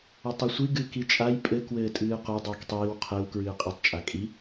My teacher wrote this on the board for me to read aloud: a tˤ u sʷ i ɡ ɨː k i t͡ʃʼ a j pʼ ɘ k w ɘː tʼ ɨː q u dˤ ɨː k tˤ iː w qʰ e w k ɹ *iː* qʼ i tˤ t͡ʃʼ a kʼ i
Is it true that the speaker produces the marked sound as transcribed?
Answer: no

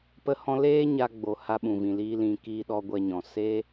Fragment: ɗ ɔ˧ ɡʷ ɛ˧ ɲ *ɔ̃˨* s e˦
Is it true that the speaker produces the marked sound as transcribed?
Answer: yes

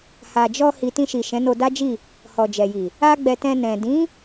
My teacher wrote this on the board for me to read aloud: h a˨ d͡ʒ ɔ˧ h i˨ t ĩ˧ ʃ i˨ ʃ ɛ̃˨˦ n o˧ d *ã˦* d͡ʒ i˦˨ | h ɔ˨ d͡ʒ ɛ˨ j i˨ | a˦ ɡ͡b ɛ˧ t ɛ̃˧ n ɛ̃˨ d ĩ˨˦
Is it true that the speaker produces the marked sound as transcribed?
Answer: no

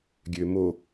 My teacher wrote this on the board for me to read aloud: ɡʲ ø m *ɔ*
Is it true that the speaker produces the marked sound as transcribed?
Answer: no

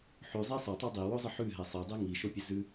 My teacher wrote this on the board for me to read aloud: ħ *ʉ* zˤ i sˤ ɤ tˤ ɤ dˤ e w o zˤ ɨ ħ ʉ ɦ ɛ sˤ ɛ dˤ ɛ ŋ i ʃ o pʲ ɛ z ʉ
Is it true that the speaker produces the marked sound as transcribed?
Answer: yes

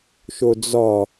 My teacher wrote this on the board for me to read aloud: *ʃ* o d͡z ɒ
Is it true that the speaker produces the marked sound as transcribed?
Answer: yes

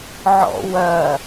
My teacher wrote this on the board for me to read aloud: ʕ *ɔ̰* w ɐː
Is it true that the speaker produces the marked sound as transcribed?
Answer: yes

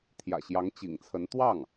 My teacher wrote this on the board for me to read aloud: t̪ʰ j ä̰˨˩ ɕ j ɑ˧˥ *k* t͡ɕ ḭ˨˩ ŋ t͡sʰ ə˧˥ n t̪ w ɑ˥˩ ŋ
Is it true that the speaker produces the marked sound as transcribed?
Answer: no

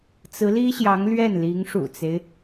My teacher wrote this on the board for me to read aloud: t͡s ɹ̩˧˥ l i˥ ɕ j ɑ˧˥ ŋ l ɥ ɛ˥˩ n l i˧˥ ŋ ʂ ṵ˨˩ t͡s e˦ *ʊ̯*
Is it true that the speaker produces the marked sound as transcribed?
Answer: no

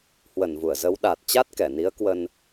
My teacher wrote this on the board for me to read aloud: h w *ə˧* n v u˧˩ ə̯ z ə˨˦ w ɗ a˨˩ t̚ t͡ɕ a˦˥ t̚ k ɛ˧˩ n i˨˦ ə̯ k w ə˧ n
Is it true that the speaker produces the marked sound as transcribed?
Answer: no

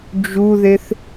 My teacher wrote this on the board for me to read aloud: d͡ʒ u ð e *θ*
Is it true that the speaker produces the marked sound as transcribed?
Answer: yes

